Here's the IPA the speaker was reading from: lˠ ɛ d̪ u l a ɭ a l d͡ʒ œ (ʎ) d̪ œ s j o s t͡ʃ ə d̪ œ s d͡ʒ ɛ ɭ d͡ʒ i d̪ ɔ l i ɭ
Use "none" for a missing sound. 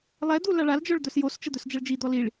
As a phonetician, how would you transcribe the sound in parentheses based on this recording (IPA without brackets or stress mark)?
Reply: ɭ